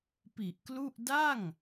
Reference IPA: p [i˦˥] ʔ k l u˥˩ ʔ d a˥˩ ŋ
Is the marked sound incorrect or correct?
incorrect